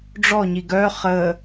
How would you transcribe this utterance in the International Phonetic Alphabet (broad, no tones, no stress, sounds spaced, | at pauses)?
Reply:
ɖ͡ʐ ɔ ɲ i ɡ œ χ ə